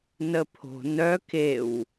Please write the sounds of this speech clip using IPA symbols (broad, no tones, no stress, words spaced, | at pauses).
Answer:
nəpʰo̤ nœ kew